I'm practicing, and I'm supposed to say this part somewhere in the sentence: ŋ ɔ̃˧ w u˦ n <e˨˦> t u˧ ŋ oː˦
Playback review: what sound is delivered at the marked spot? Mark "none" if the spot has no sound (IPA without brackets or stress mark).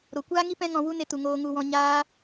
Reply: e˦